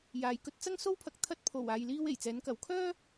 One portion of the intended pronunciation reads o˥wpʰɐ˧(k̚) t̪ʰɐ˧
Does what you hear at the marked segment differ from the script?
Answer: no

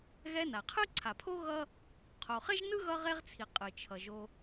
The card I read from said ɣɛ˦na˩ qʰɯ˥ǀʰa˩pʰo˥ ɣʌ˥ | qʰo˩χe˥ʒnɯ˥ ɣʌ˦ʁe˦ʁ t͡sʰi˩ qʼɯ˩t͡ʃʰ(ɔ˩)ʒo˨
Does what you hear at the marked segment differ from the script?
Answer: yes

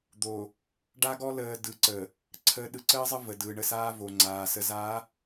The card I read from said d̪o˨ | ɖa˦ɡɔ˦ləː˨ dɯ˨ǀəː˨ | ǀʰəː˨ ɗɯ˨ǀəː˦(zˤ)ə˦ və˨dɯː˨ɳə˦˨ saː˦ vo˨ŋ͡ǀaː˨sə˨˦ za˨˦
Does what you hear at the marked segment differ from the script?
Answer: no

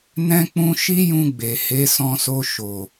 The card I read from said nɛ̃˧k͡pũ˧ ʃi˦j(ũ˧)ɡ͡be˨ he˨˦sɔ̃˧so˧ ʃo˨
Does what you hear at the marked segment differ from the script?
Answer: no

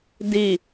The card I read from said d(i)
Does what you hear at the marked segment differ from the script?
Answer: no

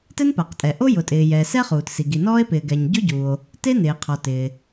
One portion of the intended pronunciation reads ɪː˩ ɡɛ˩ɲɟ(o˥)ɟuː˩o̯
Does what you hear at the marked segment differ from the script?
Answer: no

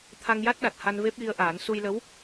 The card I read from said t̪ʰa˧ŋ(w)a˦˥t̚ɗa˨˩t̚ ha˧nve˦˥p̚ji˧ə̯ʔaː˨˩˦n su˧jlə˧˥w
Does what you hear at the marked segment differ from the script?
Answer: yes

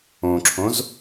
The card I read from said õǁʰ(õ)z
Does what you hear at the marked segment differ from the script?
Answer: no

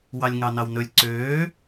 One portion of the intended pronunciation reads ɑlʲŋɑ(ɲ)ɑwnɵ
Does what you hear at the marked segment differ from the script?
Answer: yes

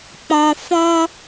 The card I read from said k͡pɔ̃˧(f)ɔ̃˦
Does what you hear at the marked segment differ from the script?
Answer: no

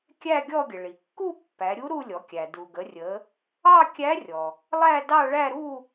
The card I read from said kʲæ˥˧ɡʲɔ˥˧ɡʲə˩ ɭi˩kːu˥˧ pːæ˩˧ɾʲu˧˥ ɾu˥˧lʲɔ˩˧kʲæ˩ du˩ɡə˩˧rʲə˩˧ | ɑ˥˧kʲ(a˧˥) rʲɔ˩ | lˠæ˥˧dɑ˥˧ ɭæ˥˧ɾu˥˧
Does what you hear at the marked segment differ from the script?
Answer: yes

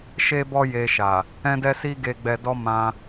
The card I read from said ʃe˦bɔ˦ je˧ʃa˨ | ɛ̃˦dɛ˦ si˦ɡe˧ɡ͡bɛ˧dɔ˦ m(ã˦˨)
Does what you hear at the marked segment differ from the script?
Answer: yes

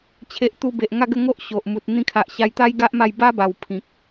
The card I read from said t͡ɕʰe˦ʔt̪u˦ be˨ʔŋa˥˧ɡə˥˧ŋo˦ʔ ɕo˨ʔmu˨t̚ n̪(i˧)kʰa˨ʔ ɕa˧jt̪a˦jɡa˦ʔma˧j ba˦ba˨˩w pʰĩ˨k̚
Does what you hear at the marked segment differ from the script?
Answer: yes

